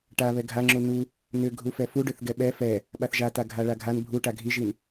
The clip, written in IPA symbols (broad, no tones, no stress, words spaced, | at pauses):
ʈaβɛ ɡʱaŋ͡ǁu nu | nʏ ɡʱufɛfuɖʏθ ɡɛɓɛ fɛ | ɓaθʒata ɡʱaɭaɡʱan bʱuʈa ɡʱiʒin